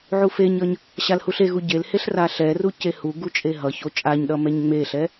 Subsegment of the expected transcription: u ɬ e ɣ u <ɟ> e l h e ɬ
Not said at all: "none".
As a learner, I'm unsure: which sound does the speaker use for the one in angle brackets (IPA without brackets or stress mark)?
ɟ